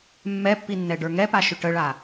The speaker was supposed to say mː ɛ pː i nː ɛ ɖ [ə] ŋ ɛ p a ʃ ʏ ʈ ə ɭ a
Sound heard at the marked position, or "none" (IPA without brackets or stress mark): ə˞